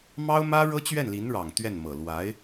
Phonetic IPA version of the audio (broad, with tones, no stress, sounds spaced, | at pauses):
m ɑ˥ ʊ̯ m ä˥ ɻ ɤ˥ t͡ɕ ɥ ɛ˥˩ n l i˧˥ n ɻ ɑ˨˩ ŋ t̪ ɥ ɛ˥˩ n m ɤ˨˩ l w a˧˥ ɪ̯